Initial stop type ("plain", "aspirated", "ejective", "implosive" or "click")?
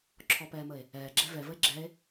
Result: click